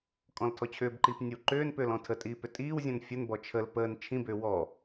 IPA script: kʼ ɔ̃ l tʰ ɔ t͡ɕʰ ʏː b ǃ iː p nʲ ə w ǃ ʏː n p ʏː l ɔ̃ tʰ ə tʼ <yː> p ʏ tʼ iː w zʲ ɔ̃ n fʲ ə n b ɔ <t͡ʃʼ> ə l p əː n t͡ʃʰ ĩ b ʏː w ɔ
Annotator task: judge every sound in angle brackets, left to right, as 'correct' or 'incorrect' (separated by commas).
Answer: incorrect, incorrect